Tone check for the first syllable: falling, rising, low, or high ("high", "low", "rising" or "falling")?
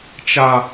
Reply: high